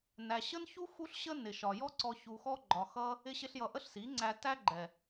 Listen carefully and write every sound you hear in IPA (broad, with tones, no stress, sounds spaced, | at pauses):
n æ˨ ɕ ə˦ n ç u˦ x u˦ ɬ ɕ ə˦ n ɪ˨ ʃ ɒ˨ j ɔ˦ ǀ ɔ˧ ç u˧ x ɔ˦ ɡ͡ǃ ɒ˧ x ʌ˦ | ɪ˧ ɕ ɪ˧ ɬ j ʌ˨ ʔ ə˦ ɬ s i˨˦ ŋ͡ǀ æ˧ t æ˦ ɡ͡ǃ ɛ˨